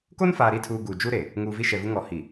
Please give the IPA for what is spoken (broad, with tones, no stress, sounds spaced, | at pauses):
k o˦ n f aː˨ ɾ i˦˨ tʰ uː˨ ɡ uː˨ d͡ʒ u˦ ɾ e˨ | ŋ uː˨ v i˦ ʃ ɛ˨ v u˦ ŋ ɔ˨ h i˨